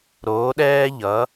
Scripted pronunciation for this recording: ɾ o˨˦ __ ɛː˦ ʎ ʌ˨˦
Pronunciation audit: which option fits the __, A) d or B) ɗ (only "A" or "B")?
B